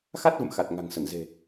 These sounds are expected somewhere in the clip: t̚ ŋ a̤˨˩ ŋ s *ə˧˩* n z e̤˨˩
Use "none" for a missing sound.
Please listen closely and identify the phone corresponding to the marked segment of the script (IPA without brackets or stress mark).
ə˧˩